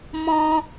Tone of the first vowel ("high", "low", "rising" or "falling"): high